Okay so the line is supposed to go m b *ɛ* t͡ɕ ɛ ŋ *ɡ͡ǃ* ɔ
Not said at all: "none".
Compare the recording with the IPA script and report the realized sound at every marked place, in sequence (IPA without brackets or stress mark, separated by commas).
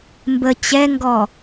ə, ɡ